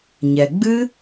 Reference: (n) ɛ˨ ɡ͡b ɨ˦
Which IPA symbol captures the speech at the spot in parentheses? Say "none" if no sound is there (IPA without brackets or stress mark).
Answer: ɲ